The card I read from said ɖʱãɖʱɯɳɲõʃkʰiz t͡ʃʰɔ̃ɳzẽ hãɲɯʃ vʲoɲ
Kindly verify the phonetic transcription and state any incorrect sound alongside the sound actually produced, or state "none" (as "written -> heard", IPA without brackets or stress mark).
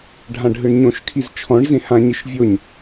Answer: none